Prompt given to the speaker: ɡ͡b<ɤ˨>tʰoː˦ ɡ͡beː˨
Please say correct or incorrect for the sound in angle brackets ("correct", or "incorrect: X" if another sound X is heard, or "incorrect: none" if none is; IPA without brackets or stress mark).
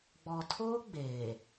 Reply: incorrect: ɔ˨